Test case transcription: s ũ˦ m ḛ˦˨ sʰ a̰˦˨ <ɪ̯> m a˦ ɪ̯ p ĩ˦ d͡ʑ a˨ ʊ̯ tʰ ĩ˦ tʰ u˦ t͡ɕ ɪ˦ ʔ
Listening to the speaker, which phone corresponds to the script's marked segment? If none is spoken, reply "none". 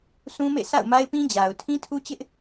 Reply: ʊ̯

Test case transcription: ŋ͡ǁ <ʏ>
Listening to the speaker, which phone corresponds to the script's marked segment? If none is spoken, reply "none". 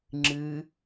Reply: ɨ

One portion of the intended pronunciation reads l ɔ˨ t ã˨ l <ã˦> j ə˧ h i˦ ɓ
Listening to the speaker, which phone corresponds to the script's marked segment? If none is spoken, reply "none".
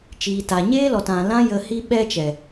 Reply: ã˦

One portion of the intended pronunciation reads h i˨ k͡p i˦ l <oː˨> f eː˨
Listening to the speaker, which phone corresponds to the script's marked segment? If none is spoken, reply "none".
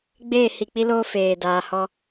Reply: oː˦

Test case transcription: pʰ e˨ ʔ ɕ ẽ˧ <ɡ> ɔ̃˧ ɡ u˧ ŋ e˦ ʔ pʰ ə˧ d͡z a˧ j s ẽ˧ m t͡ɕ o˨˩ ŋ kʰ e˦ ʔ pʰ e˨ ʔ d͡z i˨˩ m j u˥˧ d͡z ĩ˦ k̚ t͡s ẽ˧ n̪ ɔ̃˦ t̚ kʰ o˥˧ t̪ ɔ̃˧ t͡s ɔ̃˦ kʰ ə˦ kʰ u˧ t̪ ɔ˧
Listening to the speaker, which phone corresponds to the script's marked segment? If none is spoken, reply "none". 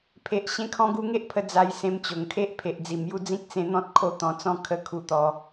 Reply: kʰ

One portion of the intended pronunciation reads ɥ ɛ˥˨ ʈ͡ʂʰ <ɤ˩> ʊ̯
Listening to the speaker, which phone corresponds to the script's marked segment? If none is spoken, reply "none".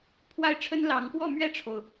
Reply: o˩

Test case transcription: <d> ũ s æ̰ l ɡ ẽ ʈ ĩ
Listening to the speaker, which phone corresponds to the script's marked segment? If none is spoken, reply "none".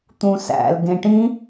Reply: t̪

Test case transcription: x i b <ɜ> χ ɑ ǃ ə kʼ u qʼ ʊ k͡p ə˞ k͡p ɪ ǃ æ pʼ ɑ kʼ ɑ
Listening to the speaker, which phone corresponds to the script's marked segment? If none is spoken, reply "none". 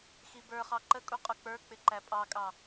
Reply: ə˞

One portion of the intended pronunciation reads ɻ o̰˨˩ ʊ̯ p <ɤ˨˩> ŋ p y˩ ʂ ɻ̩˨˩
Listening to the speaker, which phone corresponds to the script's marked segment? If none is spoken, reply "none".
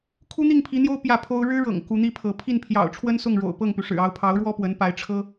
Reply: ɤ˥˩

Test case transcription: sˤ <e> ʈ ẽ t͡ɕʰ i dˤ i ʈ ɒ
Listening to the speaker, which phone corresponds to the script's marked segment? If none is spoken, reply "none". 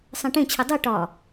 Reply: ẽ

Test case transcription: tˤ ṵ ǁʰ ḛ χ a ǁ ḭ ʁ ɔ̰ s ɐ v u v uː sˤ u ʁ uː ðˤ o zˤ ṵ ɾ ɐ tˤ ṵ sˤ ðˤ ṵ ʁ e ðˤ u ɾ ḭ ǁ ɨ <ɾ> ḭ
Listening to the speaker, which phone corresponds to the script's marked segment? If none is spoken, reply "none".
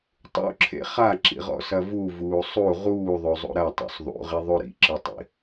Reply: tˤ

